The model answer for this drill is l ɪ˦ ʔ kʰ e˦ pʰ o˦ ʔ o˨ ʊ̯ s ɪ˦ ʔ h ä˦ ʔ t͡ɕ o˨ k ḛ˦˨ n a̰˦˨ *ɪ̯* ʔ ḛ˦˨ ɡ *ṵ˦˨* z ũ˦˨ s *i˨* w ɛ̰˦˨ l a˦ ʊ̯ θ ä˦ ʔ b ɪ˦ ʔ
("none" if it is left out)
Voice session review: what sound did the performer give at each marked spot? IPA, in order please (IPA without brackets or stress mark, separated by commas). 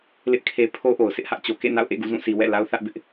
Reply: ʊ̯, ṵ˦˨, i˨